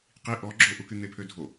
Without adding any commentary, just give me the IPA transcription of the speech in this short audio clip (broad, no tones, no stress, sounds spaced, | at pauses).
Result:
q i ʔ ɔ ɡ͡ǁ o ʔ u k y n̪ e pʰ ø dʱ o